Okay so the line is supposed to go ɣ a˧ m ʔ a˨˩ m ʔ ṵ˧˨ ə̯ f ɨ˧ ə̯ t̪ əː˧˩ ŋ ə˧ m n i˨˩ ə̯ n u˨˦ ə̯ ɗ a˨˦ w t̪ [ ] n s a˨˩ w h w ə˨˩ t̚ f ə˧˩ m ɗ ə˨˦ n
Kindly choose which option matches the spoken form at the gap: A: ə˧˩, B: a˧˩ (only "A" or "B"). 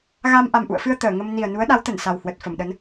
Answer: A